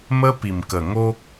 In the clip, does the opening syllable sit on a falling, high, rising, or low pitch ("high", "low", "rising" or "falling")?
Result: high